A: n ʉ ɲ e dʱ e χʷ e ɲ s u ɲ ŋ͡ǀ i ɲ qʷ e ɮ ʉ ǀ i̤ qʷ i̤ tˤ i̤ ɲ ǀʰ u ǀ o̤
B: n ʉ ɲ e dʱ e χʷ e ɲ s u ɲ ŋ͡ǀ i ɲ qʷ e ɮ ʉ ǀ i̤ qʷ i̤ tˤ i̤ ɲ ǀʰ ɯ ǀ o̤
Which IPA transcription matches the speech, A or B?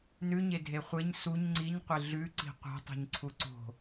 A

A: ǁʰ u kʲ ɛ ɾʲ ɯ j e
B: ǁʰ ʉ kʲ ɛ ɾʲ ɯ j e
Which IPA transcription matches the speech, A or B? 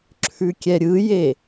B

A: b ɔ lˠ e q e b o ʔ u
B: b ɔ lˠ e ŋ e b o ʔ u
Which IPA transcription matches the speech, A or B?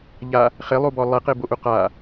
A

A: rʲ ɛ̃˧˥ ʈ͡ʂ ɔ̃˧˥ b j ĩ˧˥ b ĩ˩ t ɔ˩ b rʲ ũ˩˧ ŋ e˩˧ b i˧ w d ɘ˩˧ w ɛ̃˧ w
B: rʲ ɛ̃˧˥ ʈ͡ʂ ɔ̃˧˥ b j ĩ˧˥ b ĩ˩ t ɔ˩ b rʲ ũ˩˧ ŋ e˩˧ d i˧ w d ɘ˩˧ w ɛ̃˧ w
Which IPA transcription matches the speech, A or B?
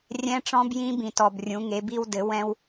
A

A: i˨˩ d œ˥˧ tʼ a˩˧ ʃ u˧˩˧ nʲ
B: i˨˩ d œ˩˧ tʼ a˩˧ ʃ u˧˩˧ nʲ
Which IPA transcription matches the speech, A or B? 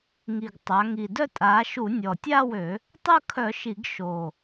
A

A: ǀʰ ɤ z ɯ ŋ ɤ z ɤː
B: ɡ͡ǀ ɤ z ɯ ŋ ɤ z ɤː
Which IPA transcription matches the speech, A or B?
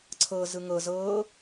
A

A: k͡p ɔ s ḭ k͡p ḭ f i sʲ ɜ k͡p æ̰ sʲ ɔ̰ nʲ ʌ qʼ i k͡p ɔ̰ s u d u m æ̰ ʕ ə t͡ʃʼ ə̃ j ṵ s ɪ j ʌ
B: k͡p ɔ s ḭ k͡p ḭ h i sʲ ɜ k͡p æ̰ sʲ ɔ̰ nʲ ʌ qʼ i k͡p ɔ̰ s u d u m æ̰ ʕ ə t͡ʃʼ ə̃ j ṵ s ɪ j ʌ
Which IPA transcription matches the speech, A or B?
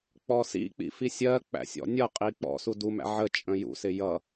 A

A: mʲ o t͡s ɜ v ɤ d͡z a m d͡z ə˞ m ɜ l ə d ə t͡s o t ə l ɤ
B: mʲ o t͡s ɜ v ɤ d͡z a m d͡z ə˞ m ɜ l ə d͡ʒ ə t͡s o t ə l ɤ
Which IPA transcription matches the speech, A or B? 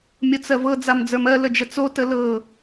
B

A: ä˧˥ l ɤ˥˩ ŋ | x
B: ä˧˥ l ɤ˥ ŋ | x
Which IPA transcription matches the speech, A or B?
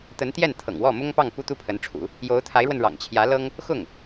B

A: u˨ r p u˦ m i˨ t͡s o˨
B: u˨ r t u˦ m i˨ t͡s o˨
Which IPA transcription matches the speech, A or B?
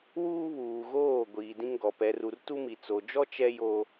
B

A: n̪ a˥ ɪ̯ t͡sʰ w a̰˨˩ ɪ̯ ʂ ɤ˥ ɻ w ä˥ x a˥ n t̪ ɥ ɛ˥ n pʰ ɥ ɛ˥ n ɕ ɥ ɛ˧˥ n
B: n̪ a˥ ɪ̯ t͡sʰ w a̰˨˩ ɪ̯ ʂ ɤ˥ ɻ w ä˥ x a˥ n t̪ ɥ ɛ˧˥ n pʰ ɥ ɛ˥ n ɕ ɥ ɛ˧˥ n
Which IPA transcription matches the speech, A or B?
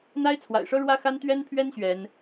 A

